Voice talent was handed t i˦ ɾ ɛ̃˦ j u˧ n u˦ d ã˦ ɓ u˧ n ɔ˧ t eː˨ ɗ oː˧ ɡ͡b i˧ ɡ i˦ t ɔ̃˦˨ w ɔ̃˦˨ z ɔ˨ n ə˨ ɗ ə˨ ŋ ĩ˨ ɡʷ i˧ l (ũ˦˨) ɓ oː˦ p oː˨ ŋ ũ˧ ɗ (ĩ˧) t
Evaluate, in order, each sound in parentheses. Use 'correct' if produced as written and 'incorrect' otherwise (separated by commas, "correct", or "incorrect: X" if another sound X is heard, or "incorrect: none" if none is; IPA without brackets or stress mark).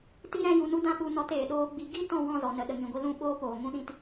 correct, correct